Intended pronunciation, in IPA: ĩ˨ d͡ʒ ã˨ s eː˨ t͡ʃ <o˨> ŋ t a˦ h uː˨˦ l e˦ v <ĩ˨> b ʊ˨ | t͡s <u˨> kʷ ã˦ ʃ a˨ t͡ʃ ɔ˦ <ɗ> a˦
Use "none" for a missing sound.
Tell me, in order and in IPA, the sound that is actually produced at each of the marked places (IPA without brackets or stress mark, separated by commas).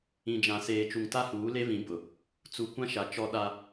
u˨, ĩ˨˦, u˨, ɗ